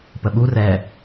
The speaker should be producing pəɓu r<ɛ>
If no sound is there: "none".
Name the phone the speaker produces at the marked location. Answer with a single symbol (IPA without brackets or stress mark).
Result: ɛ